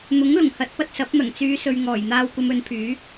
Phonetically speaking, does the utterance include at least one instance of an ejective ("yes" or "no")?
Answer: no